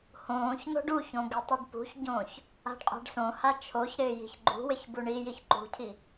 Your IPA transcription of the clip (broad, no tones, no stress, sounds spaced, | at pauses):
h õː ç n̪ o̤ ɖ u ç õ ɡ ɪ tˤ i ɖ p ṳ ç ɟ õː ç | a̤ ɖ qʼ a̤ ɖ s õ h a t͡ʃʰ o ç ɾ ɪː j i̤ ç ɡ͡ǃ ṳ w ɪ ç b u ɳ i j i ç ǃ ṳ cʰ i